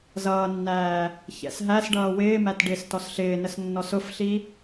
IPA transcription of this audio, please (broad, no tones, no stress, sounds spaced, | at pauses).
z ʌː nː æː | ç ɛ̰ s ɦ æ s ɖ ʌː w ɪː m æ t ɖ ɪː s t ɔ s ɬ ɪː n ə s nː ɔ s ʊ f ɬ i